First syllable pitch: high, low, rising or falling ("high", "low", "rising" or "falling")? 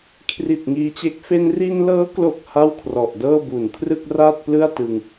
low